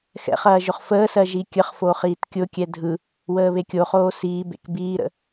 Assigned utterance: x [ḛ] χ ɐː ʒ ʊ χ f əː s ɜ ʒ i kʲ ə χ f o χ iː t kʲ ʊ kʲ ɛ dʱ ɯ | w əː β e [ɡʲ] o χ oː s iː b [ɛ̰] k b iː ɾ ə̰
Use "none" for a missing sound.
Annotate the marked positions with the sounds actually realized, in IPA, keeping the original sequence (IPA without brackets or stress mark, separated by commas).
ɛ̰, kʲ, ḛ